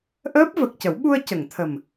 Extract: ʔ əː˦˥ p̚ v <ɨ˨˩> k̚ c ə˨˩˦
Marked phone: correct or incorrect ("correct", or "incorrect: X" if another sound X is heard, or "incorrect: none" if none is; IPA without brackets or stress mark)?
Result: incorrect: ə˨˩